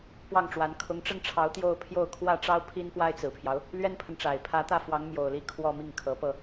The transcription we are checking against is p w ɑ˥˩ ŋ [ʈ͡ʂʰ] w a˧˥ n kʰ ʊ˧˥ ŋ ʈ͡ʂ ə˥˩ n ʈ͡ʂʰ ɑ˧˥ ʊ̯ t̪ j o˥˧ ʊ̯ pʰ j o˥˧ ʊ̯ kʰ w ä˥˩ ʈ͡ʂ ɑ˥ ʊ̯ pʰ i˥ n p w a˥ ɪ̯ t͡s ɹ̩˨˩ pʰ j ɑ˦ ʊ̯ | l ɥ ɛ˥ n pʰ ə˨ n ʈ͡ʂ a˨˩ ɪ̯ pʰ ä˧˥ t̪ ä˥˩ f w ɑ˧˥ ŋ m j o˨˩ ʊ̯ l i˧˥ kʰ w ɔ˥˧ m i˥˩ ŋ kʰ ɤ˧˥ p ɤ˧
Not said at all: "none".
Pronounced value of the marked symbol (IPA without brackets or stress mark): ʈ͡ʂ